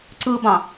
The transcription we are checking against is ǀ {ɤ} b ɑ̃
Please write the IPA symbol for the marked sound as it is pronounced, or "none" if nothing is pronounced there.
ɯ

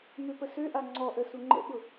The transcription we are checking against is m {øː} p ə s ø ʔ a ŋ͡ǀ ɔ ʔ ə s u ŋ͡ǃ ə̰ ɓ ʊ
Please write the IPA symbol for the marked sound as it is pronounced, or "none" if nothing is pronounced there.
ø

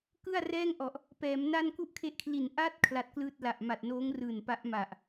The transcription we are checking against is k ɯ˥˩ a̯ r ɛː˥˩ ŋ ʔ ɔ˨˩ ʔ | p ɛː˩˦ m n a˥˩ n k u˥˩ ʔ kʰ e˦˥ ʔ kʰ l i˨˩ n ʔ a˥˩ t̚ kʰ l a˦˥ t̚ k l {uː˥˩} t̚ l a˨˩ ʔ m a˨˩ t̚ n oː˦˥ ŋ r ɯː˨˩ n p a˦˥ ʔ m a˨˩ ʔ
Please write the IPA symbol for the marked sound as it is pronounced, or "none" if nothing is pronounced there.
ɯː˥˩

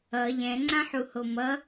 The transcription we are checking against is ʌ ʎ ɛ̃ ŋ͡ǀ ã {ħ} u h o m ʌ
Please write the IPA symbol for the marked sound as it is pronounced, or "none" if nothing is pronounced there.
ħ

